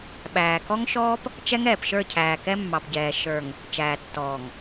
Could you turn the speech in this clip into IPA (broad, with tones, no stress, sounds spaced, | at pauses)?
ɓ æː˨ k ɔ˦ ŋ ʃ ɔː˦ p | t͡ʃ ɛ˦ ŋ ɛː˨ p ʃ ə˞˦˨ cʰ æː˨ k ɛ˦ mː ɑ˨ p ɟ ɛː˨ ʃ ə˞˨ ŋ | t͡ʃ æː˨ tː ɔː˨ ŋ